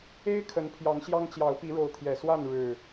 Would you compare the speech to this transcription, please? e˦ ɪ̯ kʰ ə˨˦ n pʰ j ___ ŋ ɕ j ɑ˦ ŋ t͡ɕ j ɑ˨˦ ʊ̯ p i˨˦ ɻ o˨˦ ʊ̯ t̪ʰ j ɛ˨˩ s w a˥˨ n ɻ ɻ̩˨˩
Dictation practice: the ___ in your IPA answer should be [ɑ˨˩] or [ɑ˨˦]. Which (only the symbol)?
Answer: ɑ˨˦